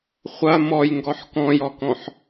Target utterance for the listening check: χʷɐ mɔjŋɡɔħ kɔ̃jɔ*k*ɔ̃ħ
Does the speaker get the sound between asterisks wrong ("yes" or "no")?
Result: no